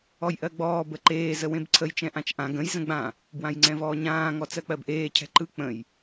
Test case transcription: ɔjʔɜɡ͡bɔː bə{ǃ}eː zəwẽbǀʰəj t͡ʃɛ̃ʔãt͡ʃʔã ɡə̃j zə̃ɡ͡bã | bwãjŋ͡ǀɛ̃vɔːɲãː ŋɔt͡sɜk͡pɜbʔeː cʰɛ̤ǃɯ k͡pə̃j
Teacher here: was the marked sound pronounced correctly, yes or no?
yes